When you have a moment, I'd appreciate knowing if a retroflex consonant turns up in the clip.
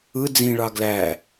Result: yes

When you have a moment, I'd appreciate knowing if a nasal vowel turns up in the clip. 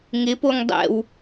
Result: no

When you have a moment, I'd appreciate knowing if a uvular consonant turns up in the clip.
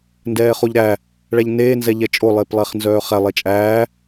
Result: yes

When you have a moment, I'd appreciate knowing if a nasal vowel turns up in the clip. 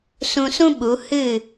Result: yes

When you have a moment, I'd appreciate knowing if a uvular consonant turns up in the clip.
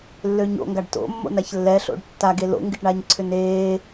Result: no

